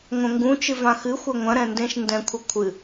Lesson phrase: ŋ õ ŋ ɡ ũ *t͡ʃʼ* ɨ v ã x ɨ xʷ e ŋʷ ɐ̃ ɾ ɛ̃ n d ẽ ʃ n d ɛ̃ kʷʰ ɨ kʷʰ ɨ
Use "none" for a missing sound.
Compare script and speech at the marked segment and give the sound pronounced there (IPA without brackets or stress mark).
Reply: t͡ʃ